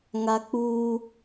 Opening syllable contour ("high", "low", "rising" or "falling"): high